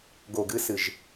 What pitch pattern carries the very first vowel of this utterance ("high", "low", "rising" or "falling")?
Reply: low